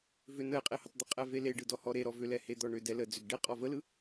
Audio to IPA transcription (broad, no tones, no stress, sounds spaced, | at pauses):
v ʏ n ə e̯ qʼ e h ə tˤ d̪ ə qʼ ɛ v e l e ɖ ɯ d ɔ h ɔ ɾ e ɾ ɔ v ʏ l ɛ h e d̪ ɔ ɳ ʏ d ɛ l ə d͡z ʏ ɡ ɖ e qʼ ɔ v ə l ɯ